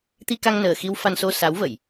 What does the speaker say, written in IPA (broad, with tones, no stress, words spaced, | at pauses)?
t̪i˧ka˧ŋnəː˨˩ xi˧wfa˧nso˧ sa˨˦w və˧˩˨j